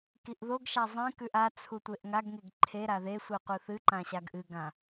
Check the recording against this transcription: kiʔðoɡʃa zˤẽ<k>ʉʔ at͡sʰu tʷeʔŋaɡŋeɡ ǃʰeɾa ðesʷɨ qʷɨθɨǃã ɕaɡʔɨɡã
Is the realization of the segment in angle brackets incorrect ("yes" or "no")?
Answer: no